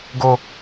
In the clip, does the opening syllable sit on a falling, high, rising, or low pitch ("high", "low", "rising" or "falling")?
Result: high